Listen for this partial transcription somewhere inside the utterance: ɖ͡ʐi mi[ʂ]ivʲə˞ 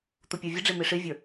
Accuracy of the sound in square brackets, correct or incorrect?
correct